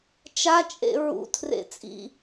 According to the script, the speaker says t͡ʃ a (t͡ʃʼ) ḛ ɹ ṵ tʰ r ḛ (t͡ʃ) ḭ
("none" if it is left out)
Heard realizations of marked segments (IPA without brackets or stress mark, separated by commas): t͡ʃʼ, t͡sʼ